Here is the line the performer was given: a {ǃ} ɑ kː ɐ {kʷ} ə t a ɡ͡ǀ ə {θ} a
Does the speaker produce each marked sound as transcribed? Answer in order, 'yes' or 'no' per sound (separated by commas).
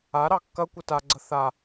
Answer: no, yes, yes